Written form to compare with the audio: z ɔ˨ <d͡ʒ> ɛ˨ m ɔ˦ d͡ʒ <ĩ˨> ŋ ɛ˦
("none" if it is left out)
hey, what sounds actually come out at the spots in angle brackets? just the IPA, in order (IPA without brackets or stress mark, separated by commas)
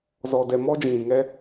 d, ĩ˨